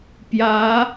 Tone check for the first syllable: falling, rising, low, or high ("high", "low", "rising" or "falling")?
rising